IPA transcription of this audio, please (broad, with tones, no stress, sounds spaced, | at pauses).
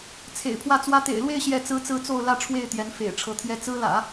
t͡sʰ ḛ˨˩ ɪ̯ pʰ w ä˥˩ t͡s w ä˥ t̪ ḛ˨˩ ɪ̯ l w e˥˧ ɪ̯ ɕ j ɛ˥˩ t͡s ɹ̩˥ t͡s ɹ̩˥ t͡s o˥˧ ʊ̯ l ä˥˧ ʈ͡ʂʰ w e˥˩ ɪ̯ t̪ j ɛ˧˥ n f ḛ˨˩ ɪ̯ ʈ͡ʂʰ ɤ˧˥ t̪ʰ j ɛ˥ t͡s ɹ̩˥ l ä̰˨˩˦